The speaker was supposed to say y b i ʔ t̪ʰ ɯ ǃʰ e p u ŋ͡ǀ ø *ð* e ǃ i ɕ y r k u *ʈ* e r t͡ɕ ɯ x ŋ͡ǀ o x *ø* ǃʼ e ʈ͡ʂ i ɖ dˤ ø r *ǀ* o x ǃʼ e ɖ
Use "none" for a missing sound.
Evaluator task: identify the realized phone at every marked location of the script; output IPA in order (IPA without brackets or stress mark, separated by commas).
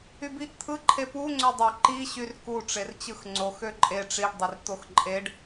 dˤ, ʈ͡ʂ, ø, t̪